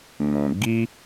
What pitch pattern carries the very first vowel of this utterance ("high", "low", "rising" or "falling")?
low